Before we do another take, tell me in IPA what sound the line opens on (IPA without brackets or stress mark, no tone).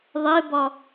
ðˤ